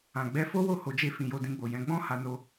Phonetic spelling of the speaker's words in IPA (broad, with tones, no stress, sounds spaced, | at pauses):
ã˨ ɡ͡b ɛ˧ f o˦ w o˦˨ h o˧ d͡ʒ e˦ f ĩ˧ j o˧ d ĩ˧ ɡ͡b o˨ j ɛ̃˨˦ ɡ͡b ɔ̃˦ h a˧ n o˧